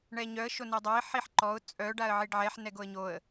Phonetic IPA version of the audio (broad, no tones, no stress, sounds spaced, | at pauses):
ɳ ɛ ɲ œ ə̯ ʃ o n ɛ dˤ a ɪ̯ ħ i ħ ǃ ɔ ʊ̯ t͡sʼ œ ɖ a ə̯ ʕ i ɖ ʕ ɛ ħ n ɛ ɡ o ə̯ ɲ o ə̯